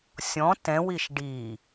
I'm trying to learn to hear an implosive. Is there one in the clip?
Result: no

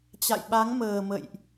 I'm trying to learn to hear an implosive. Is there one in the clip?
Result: yes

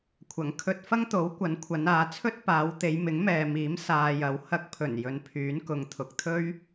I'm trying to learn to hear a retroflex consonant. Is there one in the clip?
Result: no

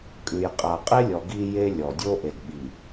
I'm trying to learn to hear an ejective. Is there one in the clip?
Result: yes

